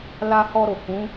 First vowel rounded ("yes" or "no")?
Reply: no